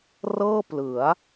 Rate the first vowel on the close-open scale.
mid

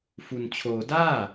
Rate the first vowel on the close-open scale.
close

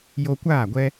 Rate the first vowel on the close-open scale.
mid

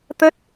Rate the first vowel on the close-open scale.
mid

